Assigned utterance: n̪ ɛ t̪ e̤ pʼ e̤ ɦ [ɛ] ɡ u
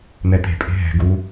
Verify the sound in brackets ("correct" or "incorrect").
incorrect